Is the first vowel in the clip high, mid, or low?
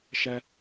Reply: low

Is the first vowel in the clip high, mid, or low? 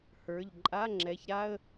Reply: mid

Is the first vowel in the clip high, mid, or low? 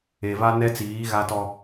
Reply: mid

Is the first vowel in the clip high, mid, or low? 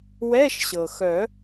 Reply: mid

